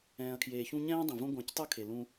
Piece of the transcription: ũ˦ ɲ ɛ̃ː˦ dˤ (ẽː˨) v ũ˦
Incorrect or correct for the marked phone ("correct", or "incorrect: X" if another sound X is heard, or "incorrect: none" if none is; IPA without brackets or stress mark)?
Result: incorrect: ẽ˨